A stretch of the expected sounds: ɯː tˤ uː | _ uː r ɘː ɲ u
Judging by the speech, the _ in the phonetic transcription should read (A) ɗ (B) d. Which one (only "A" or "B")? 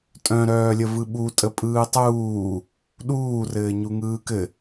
A